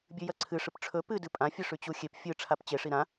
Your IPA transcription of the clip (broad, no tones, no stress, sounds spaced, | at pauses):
bʲ ʉ j ɐ ǀʰ ɨ ʂ ɨ p ʈ͡ʂʰ ɵ p ɨ d ɨ pʼ ã fʲ ɨ ʂ ʉ t͡ɕ u xʲ e p fʲ ɨ ʈ͡ʂʰ a p t͡ɕ e ʂ i ɾ ã